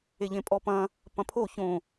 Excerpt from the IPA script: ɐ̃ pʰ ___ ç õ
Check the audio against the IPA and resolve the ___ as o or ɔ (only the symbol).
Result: o